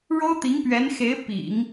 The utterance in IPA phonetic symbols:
ɻ o˥ ʊ̯ t̪ i˧˥ ŋ p ɥ ɛ˧˥ n x e˧˥ ɪ̯ p ḭ˨˩˦ ŋ

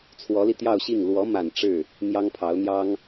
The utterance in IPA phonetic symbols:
t͡sʰ w ɔ˧˥ l i˧ t̪ j ɑ˥˧ ʊ̯ ɕ i˥˩ ŋ l w ɔ˧˥ m a˨˩ n ʈ͡ʂ ɻ̩˥˩ | n̪ j ɑ˥ ŋ pʰ ɑ˧˥ ʊ̯ n̪ j ɑ˥ ŋ

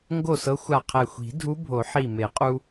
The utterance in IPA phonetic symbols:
ŋ ɡ o˥˨ s ɤ˧˥ xʷ a˧˩ qʰ ɛ˧˩ xʷ i̤˨˩˦ dʱ u˧˥ bʱ o˨˩˦ ħ i˧˩ m e˨˩˦ qʼ u˧

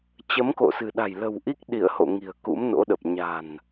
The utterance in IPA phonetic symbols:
t͡ɕ ə˨˦ m k o̰˧˨ s ɨ̤˨˩ ɗ a̤˨˩ j l ə̤˨˩ w ʔ i˦˥ k̚ ɗ i˧˩ ə̯ h o̰˧˨ ŋ i̤˨˩ ə̯ k ṵ˧˥ m n o̰˧˥ ɗ ə˨˩ p̚ ɲ a̤˨˩ n

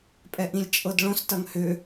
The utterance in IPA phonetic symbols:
pʼ ɛ ʔ ĩ lʲ t͡ʃʼ ɤ d ɭ õ s t ɐ ŋ h ʏ

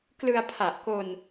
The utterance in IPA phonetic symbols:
k l ɯ˧ a̯ pʰ a˨˩ ʔ k o˧ n

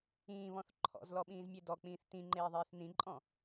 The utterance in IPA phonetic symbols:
ĩː β ɔ̃ θ ǃʰ ɔ̰ z l ɔ ɓ ĩː z mʲ e d ɔ k͡p ĩː θ t ĩ ŋ͡ǃ eː ðˤ eː θ n ĩ ǃʼ ɔ̃

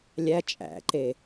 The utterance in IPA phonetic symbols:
lʲ æ t͡ʃʼ æ̰ ǃ e

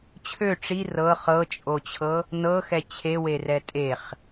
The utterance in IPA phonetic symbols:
t͡ɕʰ ø ʈ͡ʂ i r ɤ χ ɤ t͡ʃʼ o t͡ɕʰ ɤ | n ɤ x ɛ t͡ɕʰ e w e r ɛ tʼ e χ

